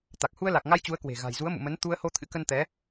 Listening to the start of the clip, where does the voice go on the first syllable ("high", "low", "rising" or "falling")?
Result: low